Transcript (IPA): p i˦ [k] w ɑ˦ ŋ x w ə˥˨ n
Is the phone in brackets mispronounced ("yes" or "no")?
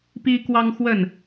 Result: no